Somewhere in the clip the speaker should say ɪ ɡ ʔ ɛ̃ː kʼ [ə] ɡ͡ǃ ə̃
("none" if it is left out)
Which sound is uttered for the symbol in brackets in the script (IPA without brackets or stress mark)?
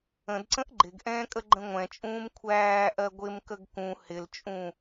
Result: ə